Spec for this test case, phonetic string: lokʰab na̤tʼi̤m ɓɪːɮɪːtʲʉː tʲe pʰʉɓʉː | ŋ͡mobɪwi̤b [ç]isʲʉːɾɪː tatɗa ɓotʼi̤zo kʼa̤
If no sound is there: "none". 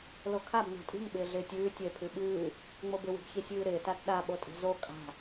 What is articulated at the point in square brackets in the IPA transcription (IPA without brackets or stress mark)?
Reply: ç